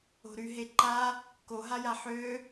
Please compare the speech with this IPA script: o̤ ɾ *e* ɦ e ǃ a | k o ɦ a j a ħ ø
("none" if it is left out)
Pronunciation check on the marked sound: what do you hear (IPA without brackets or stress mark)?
y